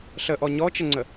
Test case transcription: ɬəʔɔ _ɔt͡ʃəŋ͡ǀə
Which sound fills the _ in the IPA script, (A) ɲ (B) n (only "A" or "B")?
A